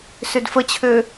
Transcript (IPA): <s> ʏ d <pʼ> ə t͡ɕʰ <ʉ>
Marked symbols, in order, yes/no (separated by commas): yes, no, no